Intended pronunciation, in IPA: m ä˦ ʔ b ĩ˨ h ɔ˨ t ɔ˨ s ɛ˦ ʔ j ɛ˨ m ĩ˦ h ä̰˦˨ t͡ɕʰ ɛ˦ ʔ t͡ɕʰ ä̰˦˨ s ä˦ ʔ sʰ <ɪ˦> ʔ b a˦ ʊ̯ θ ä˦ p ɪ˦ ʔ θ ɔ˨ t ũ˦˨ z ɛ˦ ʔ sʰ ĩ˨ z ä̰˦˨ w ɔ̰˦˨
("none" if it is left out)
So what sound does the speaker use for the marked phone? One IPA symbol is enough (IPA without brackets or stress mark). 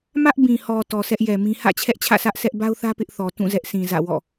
ɛ˦